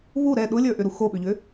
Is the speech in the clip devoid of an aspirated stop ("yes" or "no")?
yes